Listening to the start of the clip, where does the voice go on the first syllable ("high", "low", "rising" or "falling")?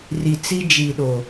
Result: low